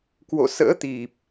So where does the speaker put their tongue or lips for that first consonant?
velum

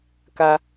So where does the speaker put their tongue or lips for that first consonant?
velum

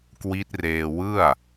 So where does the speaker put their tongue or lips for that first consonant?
velum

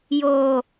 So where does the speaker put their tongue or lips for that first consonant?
palate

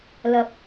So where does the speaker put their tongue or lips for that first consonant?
tongue tip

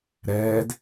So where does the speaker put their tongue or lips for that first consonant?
tongue tip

